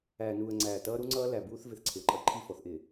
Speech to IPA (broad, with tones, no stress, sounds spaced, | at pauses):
æː˨ n uː˨ ə̯ ŋ͡ǀ æː˨ t ʌː˦ ɾ u˦ ŋ͡ǀ ʌː˦ l æ˨ b uː˦ θ v ɪ˨ θ ǀʰ ɪ˨ ə̯ ǃʼ ʌ˦ ǃʰ i˦˨ f ɔ˨ θ ʔ ɪː˨